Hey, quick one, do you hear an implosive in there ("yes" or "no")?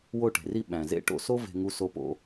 yes